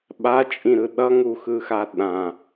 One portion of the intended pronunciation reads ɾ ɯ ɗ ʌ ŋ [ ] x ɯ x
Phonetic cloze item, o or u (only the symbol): u